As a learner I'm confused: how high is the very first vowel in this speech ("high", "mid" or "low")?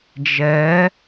mid